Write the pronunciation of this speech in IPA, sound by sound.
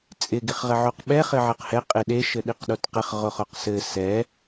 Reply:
t͡sʼ ɪ ɡ ɪ χ ʁ ɘ ʕ o q ɓ ɛ χ ɘ ʕ ɘ q h ɛ qʼ e ɗ e ʃ ɘ ɗ i q ɗ o t q ɘ χ ʁ o χ o q s ɘ s ɛ

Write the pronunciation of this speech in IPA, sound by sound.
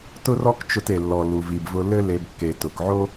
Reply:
t ʊ˥ r ɔ˥ k t͡ʃ ʊ˧ t e˩ lː ɔ˩ l u˩ v i˩ b v ʊ˧ l ɘ˥ l e˧ b kː e˩ t ʊ˩ k ʕ o˥

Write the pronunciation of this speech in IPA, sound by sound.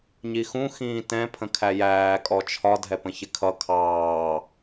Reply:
ɲ i x ũ x ĩː t ɛ̃ pʰ ə̃ kʰ æ j æː kʼ ɔ t͡ʃʰ ɒ dʱ ɛ p ə̃ ç ɪ kʰ ʌ kʰ ɑː

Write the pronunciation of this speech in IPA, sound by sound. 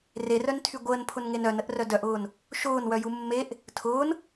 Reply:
r e r œ n tʰ y ɡʷ əː n pʰ ʊ n ŋ e n œ n ə ʔ r œ d œ ʔ ʊː n | ʃ ʊː n w œ j u mː e ʔ | tʰ ʊː n

